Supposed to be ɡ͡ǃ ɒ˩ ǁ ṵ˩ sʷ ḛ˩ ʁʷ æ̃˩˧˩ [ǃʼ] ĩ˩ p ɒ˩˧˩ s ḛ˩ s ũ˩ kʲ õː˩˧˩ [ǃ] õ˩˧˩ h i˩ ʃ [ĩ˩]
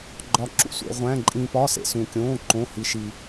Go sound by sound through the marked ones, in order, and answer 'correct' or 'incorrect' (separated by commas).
correct, correct, incorrect